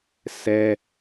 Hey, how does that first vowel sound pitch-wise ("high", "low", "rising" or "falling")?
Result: high